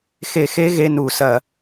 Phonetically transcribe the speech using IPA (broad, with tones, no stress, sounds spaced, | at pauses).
x e˧˩˧ x e˧˥ ɣ e˧˥˧ n u˧˩˧ s ɐ˧˩˧